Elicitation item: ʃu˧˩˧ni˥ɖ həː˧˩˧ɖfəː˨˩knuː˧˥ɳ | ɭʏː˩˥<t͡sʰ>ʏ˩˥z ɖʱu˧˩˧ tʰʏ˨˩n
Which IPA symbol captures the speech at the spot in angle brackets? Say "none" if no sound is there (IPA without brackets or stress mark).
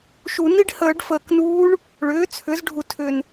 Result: t͡sʰ